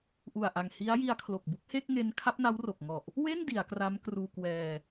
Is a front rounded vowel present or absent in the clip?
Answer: absent